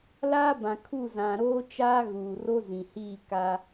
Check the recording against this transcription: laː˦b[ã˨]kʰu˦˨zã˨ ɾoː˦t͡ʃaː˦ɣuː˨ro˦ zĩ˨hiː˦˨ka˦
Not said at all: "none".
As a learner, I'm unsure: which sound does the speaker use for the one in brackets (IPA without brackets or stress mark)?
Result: ã˨